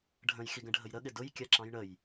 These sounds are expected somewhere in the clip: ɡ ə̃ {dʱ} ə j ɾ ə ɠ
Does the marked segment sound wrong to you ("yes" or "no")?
yes